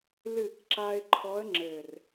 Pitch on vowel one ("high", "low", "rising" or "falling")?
low